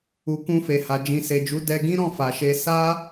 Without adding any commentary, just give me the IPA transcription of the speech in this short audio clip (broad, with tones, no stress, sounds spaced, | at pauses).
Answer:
u˨ k ũ˧ f e˨ h a˨ d͡ʒ ĩ˨ s e˨ d͡ʒ u˨˦ d ɛ˧ ɡ ĩ˦ ɾ ɔ̃˦˨ f a˨ ʃ e˧ s a˦